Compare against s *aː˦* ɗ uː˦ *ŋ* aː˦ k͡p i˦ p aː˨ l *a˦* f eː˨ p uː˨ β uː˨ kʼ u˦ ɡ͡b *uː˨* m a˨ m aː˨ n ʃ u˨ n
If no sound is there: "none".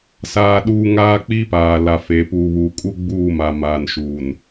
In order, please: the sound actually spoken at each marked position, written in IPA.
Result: aː˦, ŋ, a˨, uː˦˨

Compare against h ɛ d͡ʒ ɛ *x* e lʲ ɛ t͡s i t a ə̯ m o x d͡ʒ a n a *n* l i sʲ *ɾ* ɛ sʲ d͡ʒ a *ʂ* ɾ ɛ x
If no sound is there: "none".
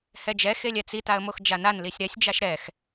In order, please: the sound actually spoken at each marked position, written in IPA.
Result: x, n, ɾ, ʃ

